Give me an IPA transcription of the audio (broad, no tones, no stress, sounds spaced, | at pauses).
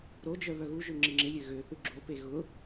ɾ o d͡ʒ œ β œ ɣ u ʒ ø ŋ͡ǁ ɪ ŋ͡ǁ ɪ lʲ ø ɣ ø θ u ɡ͡ǁ o p e ɣ ʊ